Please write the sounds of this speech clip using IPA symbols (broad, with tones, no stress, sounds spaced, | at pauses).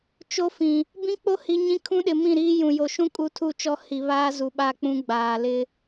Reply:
t͡ʃ o˦ f ĩ˨ | b ĩ˦ k͡p o˦ h i˨ ɲ ĩ˦ kʰ ũ˦ ɗ ɪ˨ m ĩ˦˨ ɾ iː˦ j ũ˨ j o˨ ʃ ũ˦ kʼ u˦ tʰ u˦˨ t͡ʃ ɔ˦˨ h i˨ β aː˦ z u˨ ɓ a˦˨ k͡p ũ˦ ɡ͡b aː˨ l ɪ˦